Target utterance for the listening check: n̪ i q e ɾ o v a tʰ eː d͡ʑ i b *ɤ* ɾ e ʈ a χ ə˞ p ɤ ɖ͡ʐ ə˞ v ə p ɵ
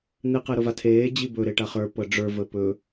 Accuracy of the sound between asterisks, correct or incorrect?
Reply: incorrect